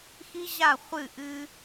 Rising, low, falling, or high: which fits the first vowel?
high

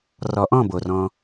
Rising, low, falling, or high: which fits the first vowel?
rising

